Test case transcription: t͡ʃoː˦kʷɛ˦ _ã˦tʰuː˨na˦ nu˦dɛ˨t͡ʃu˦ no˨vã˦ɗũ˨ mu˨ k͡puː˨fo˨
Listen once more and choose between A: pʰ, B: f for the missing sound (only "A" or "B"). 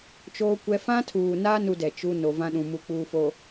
B